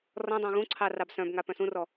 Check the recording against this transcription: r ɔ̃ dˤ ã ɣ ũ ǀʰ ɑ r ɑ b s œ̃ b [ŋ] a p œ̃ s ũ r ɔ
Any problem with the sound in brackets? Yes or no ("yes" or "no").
no